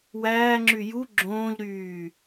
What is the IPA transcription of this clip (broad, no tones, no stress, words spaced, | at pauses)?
wæːŋ͡ǁy ju ɡ͡ǁõːʎɾyː